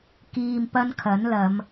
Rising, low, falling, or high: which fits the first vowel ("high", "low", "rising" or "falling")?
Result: low